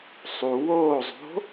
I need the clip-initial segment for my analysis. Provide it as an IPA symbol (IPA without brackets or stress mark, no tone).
sˤ